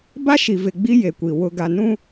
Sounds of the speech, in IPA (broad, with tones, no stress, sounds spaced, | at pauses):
b a˦ ʃ i˨ v ɪ˨ ɡ͡b i˦ j e˨ kʷ i˨ w ʊ˨ ɡ a˨ n ũ˦